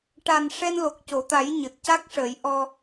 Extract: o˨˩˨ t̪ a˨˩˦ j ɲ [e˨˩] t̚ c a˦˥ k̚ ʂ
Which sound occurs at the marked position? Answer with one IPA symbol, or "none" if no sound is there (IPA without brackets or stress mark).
ɨ˨˩